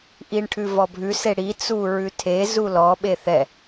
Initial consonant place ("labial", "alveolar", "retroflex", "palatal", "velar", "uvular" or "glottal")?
glottal